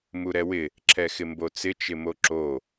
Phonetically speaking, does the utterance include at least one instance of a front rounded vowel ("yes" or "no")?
no